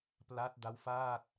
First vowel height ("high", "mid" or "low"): low